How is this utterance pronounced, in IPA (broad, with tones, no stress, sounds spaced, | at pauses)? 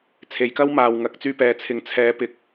t͡sʰ e˨ j k ɐ˥ w m aː˨ w ŋ ɐ˨ k̚ t͡s yː˧ p ɛː˨ t͡sʰ ɪ˨ ŋ t͡sʰ ɛː˨˧ p ɪ˨ k̚